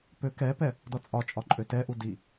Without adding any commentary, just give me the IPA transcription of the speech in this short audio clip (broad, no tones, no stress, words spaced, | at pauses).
pø kɛpɛ | dɔt͡sʼɒt͡ʃʼɒ ǃʼøtɛʔu di